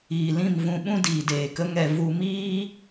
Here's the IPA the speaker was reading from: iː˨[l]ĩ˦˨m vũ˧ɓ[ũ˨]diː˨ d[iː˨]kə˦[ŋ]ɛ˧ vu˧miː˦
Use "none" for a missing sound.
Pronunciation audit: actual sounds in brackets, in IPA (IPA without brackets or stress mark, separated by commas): l, ũ˦, eː˨, ŋ